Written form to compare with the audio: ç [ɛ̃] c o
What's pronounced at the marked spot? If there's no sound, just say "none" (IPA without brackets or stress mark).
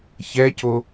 ɛ